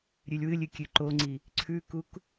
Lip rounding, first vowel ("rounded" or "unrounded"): rounded